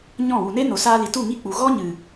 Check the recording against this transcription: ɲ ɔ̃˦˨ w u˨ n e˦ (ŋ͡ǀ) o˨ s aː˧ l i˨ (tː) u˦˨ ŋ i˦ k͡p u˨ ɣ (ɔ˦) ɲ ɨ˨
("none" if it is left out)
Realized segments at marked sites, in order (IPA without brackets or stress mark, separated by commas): n, t, ɔ˦